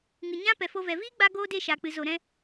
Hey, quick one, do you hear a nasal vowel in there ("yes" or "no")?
yes